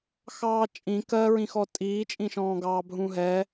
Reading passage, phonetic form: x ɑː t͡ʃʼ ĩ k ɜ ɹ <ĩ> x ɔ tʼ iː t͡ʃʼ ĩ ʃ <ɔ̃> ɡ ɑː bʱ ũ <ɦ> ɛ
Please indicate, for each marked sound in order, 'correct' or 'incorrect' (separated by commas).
correct, incorrect, correct